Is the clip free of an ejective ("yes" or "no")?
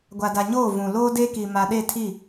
yes